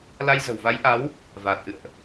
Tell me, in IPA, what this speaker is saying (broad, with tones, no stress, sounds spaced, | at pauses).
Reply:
l a˧ j z ə̤˨˩ w v a˨˦ j ʔ a˨˦ w | v aː˨˩ t̚ ʔ ɨ̰˧˨ ə̯ ʔ